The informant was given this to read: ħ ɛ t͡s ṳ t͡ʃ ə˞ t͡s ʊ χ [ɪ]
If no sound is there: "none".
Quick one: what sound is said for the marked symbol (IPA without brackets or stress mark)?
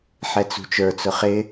ɪ